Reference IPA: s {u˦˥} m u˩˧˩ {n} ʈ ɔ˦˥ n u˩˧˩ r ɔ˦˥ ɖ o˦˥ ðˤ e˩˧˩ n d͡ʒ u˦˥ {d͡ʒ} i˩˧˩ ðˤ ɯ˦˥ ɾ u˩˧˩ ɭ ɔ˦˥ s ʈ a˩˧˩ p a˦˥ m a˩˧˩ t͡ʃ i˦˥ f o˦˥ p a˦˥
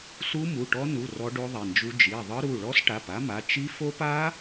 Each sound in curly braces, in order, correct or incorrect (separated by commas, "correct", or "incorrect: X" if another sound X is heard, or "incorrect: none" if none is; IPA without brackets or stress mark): correct, incorrect: none, correct